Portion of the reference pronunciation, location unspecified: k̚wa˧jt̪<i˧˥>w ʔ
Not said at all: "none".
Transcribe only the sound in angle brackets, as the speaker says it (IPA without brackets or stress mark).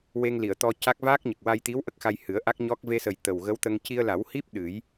i˧˥